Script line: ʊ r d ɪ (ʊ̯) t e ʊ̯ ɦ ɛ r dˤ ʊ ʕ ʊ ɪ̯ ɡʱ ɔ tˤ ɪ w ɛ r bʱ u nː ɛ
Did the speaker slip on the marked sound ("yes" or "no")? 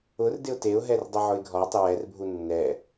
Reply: no